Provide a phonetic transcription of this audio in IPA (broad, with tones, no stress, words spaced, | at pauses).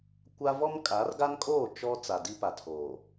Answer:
kʷa˦ vɔ˦mkʼa˨˦r ɡa˦nkʼoː˦˨ t͡ʃɔ˦ t͡sa˨di˦pa˨tʰoː˨